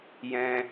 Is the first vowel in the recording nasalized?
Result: yes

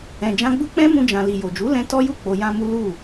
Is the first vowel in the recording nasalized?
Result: yes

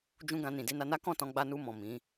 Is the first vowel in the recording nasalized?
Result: yes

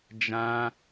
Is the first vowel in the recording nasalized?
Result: yes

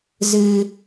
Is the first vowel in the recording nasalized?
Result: no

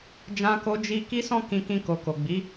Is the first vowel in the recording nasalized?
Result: yes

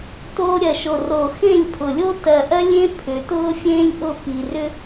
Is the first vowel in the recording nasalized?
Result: no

